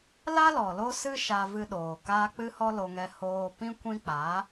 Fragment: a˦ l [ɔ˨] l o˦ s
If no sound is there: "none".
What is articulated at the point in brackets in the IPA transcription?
ɔ˨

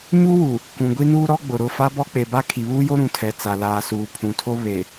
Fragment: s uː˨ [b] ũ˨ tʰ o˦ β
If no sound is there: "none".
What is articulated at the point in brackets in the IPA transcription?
pʰ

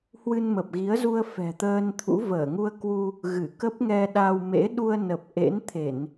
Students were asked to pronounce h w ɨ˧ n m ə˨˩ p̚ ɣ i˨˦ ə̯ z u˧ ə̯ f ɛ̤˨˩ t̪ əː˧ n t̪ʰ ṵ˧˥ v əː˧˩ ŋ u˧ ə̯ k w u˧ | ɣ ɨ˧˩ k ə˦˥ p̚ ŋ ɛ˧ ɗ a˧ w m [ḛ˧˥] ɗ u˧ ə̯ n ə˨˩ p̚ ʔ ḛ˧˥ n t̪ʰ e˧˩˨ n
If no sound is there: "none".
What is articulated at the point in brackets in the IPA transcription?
ḛ˧˥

